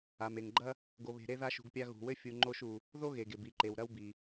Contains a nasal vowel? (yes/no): no